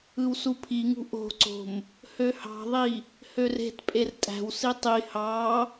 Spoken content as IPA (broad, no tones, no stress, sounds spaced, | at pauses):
ɯ w s u pʰ i ŋ ṳ ʔ o̤ ǀ o̤ m | h ø h ɑ̤ ðˤ i | h ø r e̤ t pʼ e r tʼ æ̤ w s i tˤ i h ɑ